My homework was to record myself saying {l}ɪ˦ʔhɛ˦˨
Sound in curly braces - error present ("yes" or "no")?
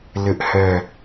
no